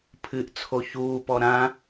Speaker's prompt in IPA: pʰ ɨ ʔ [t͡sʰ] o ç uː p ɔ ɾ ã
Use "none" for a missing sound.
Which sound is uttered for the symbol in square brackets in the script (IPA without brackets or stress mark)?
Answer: t͡sʰ